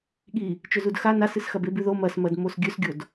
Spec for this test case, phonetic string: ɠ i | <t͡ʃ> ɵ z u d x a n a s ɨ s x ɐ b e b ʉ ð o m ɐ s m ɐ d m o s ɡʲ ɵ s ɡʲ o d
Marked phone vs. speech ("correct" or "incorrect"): correct